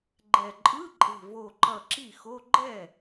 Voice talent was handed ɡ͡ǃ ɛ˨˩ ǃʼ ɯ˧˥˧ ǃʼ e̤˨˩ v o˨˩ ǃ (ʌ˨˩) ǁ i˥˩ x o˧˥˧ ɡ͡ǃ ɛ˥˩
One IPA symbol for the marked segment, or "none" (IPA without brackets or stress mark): ʌ˨˩